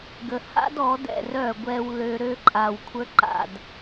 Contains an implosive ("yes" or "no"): no